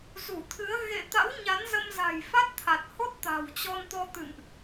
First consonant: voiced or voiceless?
voiced